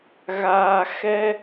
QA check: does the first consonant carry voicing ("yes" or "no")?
yes